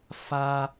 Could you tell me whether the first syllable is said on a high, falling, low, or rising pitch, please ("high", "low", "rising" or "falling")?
high